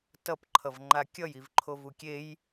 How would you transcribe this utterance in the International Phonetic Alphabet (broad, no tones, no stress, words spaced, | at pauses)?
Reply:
tʌpǃʰʌvŋ͡ǃa kʲʌjivǃʰo vukʲej